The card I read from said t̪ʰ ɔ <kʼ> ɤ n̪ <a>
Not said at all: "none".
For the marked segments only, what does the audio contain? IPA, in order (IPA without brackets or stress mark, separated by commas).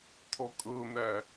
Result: kʼ, æ